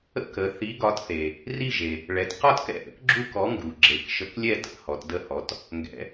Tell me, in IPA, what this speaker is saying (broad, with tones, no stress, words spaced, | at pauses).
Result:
ə̰˥˨k ə˩˧ θi˨˥ɡɒ˨˥tθe˩ | ri˥˨ʒe˩ | ɭɛ˩˧t qɒ˥˨tkɛ̰˥˨ʔə̰˨˥k ɡ͡ǁu˥˨kɔ˨˥ŋɡu˩ɡ͡ǁe˩˧k ʃə˨˥klʲɛ˥˨tə̰˩˧ hɔ˩˧tdə˥˨hɔ˨˥t | ŋɡɛ̰˩˧